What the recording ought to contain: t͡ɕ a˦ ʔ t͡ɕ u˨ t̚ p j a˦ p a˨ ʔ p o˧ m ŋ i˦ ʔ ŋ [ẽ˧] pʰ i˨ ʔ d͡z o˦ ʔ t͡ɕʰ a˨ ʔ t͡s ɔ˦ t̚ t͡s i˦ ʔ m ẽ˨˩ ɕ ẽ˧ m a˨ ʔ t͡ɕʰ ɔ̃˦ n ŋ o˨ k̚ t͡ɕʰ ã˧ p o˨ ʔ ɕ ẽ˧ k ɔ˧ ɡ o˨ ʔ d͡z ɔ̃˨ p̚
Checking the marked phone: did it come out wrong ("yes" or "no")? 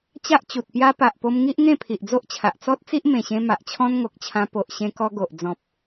yes